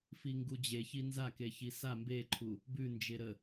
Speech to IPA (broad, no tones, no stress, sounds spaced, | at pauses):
f i ŋ ɡ u d͡ʑ e ç i n z a k e ç i s a m b e ǃʰ u | b ʉ n d͡ʒ e ɾ ə